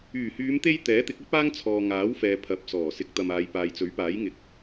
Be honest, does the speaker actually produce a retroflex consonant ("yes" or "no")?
no